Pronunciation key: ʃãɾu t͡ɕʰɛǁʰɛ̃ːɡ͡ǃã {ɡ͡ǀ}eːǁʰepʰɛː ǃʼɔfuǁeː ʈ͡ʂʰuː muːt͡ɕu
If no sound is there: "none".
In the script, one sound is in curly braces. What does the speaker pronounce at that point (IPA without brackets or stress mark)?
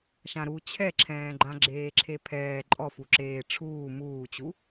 ɡ͡ǁ